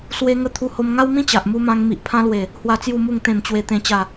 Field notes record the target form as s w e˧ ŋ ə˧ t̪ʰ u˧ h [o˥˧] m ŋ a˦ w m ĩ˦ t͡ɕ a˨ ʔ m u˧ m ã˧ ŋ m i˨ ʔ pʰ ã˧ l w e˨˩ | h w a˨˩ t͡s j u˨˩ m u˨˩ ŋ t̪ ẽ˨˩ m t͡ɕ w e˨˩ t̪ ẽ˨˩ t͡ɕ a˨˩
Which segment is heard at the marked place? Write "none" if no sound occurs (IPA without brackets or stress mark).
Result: o˧